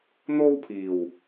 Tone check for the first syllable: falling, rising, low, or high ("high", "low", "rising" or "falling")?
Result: high